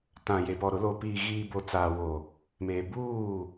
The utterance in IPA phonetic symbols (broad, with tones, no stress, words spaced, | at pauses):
tã˨ je˨pɔ˨ɾʊ˨˦ lo˨piː˨ɣiː˨bo˨ t͡saː˨wo˨ | meː˨ buː˦˨